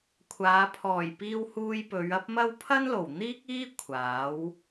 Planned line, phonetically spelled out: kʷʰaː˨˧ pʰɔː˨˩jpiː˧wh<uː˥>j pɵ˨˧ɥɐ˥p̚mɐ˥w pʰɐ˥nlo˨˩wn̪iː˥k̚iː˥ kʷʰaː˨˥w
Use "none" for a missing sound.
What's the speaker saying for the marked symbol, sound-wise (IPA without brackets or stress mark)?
uː˧